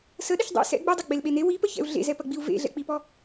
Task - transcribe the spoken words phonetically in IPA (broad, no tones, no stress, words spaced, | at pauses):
səɗəç dˤḭ sɛ̰ ɡ͡bedˤɐ ɡ͡belɓene wipəçɛ̰u̯ ɮḛzɛpɐɡ͡biu̯ vḛɮɛ̰k͡pipɔ